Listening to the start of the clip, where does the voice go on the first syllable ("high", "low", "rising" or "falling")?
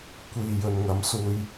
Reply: low